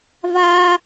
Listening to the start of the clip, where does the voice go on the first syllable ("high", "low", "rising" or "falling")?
high